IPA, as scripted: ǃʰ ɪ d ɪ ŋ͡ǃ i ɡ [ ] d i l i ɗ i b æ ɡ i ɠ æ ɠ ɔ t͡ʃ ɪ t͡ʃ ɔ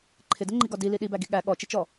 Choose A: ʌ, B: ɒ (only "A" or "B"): B